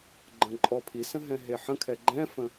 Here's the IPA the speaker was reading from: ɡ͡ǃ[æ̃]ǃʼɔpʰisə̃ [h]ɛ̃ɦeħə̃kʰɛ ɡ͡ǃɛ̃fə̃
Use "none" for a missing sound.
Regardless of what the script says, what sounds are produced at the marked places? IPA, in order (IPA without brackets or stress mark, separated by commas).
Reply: ə̃, ɦ